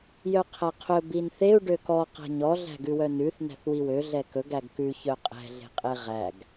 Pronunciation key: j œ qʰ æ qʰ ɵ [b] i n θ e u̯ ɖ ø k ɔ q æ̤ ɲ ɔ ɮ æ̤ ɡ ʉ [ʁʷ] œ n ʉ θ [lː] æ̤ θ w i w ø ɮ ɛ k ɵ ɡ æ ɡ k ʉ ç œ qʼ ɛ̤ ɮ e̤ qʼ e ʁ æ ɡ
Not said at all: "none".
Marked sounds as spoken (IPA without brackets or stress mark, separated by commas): b, w, n